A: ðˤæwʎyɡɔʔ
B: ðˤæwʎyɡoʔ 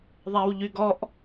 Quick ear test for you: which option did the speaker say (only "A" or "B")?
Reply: A